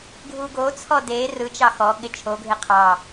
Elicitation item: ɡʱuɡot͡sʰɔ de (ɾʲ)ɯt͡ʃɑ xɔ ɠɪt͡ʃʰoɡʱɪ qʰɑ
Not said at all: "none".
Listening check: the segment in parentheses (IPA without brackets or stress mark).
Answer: r